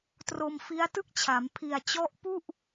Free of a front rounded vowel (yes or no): yes